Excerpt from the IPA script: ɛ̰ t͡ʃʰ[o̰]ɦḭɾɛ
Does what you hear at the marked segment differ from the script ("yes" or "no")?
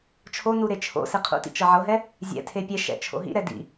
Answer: no